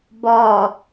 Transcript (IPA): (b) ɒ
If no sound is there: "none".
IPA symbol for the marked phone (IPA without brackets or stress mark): b